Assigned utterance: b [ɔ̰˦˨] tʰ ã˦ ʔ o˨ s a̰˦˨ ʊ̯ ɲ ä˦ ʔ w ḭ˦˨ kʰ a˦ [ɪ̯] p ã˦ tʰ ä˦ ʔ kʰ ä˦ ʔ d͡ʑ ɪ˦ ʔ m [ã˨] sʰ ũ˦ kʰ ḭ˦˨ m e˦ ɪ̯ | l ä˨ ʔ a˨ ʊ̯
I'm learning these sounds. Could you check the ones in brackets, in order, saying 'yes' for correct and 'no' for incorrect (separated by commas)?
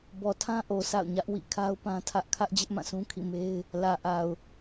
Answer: no, no, no